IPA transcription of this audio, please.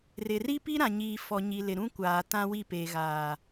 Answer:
rɪ˨ ri˦pi˦ɾã˨ɲiː˨ fɔ˨ɲi˨lɪ˨ɾũ˦ kʷaː˨tã˦wi˦˨ peː˨ɣaː˨

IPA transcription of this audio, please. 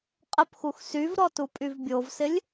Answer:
qʼəpxux syvɾɔtupʼyv bʲovsɪlʲ

